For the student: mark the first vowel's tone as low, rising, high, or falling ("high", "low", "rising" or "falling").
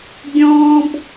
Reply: high